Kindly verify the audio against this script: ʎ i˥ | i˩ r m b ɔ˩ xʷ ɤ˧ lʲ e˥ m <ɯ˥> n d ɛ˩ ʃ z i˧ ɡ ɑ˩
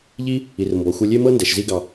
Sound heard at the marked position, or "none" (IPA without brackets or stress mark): ɤ˥